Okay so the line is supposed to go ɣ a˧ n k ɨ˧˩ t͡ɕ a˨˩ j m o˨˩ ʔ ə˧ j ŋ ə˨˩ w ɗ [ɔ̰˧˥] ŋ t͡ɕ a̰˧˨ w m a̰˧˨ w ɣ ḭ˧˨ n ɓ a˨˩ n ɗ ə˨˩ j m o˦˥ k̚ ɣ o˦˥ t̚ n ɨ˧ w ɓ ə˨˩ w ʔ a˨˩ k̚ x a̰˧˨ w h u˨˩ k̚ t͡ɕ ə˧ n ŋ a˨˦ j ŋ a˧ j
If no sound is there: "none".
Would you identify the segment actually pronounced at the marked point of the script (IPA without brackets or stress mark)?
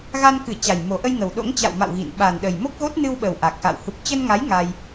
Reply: o̰˧˥